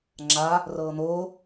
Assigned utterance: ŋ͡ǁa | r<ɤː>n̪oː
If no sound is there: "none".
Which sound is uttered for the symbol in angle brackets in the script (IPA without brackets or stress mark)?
ɤː